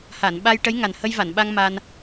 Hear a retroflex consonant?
yes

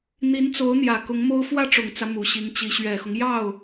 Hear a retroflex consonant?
yes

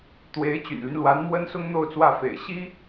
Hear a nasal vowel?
no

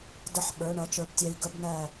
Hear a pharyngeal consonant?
yes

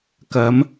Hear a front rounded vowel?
no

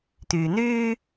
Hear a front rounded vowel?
yes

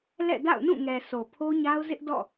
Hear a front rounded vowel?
no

